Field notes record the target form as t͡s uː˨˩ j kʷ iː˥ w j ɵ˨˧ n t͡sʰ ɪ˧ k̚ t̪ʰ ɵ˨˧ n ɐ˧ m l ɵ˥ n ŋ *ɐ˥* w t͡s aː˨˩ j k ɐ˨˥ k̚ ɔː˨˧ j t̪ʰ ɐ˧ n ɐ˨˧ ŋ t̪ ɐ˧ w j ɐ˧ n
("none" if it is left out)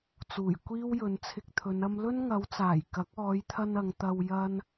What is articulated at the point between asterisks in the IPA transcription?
ɐ˨˧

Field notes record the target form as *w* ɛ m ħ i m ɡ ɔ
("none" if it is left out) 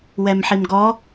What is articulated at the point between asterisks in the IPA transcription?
w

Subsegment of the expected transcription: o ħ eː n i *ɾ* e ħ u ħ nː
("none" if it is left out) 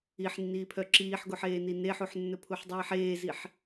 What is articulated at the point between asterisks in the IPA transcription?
n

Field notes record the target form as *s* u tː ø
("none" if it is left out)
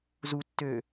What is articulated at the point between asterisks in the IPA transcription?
z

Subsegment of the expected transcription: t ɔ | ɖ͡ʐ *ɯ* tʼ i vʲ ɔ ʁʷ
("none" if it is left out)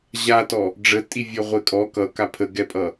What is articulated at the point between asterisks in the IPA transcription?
ə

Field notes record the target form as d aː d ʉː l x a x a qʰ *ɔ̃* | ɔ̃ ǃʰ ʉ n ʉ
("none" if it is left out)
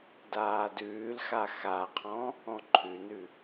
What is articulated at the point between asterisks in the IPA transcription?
ɔ̃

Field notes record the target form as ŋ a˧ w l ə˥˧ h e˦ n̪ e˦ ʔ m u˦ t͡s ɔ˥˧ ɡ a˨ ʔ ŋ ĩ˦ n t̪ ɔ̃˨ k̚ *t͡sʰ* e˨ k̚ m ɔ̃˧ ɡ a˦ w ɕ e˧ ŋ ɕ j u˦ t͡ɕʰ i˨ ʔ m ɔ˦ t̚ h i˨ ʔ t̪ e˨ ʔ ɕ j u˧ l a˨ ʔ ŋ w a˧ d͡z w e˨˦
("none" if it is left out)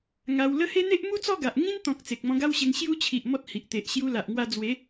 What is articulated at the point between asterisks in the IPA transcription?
t͡s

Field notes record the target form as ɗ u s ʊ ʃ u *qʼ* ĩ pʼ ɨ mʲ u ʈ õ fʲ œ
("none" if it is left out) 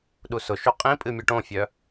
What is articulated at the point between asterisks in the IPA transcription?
qʼ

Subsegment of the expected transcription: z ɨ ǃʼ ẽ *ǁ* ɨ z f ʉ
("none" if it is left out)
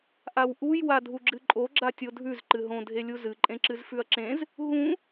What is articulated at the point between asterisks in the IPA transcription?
ǁ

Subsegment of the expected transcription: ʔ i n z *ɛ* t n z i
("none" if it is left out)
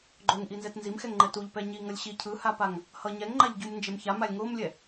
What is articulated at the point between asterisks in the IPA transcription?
ɛ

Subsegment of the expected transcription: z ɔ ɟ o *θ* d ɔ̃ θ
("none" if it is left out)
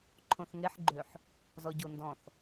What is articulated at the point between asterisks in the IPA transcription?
n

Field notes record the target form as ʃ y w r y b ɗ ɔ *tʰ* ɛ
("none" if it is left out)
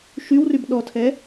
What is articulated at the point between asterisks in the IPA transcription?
tʰ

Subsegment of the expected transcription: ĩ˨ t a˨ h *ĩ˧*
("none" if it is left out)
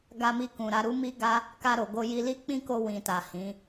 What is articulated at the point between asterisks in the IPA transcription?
ĩ˨˦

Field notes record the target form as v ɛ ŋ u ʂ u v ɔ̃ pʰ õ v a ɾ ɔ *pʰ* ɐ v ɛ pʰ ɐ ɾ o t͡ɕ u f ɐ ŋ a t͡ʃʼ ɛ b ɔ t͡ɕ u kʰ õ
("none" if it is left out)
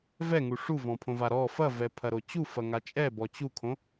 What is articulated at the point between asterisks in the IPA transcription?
f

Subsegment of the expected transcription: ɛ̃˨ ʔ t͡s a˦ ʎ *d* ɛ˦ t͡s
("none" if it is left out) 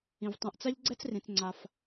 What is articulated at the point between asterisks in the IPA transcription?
ɡ͡ǀ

